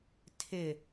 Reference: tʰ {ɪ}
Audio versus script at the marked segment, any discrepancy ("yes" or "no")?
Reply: no